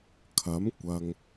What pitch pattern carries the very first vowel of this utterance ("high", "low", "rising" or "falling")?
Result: rising